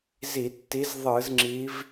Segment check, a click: present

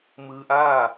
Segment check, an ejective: absent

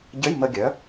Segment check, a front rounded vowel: present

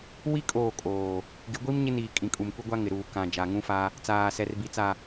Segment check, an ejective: present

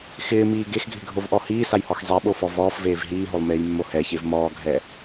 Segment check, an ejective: absent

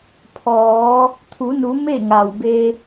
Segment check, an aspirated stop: present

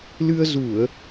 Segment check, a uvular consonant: absent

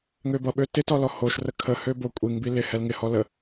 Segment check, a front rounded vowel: present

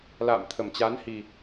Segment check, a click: absent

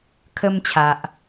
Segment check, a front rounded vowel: absent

